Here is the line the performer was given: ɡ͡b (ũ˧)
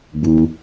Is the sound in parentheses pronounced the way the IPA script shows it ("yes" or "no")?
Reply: no